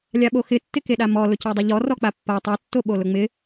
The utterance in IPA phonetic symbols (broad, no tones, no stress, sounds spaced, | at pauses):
lʲ a ɓ o x ɪ tː ɪ k e ɗ a m ɔ l ʊ c e dˤ ɪ ʎ ɔ r ɔ k͡p a pː a tˤ e tː o ɓ o l ʊ ŋ͡m ɪ